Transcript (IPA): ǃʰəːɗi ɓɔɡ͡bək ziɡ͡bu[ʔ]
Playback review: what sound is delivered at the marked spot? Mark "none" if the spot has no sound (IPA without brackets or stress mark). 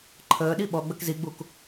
k